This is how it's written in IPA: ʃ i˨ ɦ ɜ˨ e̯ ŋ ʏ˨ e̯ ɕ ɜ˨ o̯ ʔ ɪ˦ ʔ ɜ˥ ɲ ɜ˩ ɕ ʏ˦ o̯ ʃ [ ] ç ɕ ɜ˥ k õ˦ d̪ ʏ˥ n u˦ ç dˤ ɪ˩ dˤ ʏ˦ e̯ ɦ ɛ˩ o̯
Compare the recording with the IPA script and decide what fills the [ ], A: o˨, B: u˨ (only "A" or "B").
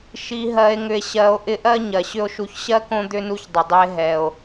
B